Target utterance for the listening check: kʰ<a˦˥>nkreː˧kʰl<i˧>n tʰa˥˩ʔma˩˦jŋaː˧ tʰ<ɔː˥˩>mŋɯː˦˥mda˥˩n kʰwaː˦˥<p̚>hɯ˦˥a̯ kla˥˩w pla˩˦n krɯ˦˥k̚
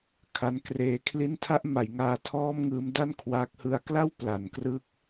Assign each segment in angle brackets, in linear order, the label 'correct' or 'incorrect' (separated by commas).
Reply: correct, incorrect, correct, incorrect